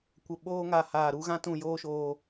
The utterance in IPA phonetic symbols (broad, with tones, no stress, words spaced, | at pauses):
kʷə˨ɓoː˧ŋa˨ haː˨ɾu˧ɣã˦ tũ˧joː˦ʃoː˧